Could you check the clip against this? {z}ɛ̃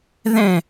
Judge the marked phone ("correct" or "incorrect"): incorrect